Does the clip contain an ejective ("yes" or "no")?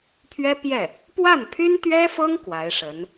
no